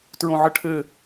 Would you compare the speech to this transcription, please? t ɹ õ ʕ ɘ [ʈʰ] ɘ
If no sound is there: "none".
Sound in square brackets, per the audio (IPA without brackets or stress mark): ʈʰ